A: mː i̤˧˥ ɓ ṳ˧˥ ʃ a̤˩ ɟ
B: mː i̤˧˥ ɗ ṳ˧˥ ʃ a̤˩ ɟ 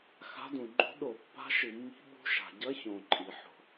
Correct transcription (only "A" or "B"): A